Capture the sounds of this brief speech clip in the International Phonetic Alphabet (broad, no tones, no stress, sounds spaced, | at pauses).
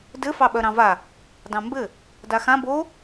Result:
d ɘ f ɑ ɓ œ ɾ ɑ̃ v a | d ɑ̃ m b ɘ | d a x ã b o